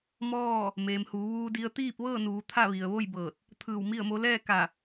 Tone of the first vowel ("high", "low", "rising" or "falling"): falling